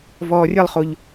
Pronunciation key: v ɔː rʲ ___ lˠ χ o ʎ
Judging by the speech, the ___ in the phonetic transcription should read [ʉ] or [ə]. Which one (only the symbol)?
ə